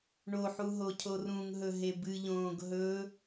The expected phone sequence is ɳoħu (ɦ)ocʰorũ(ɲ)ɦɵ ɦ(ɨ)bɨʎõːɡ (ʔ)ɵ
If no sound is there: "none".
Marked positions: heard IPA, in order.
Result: ɦ, ŋ, e, ɦ

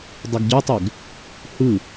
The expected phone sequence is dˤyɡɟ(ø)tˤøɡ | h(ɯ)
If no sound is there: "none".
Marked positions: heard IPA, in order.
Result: ø, ɯ

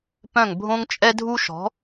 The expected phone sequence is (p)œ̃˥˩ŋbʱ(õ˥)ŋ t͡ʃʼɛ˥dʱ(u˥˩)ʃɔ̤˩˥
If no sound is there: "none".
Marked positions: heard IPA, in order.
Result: p, õ˥, u˥

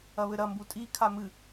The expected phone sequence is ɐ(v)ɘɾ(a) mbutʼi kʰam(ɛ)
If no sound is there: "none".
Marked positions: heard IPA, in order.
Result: β, ɐ, ɨ

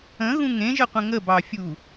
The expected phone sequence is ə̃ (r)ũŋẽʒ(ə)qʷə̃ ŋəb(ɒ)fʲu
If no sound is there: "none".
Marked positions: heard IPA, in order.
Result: ɣ, ə, ɑ

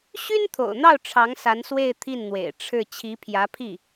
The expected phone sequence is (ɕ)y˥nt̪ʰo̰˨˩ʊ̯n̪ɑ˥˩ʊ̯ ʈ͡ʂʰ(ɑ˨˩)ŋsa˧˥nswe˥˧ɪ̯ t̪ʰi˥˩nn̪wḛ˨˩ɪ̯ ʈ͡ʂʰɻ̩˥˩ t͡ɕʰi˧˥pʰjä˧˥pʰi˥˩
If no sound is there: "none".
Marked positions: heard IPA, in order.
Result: ɕ, ɑ˧˥

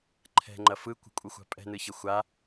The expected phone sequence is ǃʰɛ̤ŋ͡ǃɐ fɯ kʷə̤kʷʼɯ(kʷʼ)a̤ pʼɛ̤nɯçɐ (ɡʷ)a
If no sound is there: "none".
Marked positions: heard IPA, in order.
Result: xʷ, xʷ

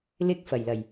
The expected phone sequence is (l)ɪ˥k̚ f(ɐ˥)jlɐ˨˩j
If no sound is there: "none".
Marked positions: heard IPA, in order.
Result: l, ɐ˨˩

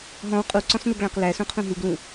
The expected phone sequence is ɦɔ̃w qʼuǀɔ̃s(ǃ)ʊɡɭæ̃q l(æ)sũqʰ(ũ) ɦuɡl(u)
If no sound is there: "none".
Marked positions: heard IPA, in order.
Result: n, æ, ũ, ũ

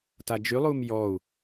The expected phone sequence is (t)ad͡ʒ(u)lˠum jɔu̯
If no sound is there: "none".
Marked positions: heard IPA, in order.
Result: t, y

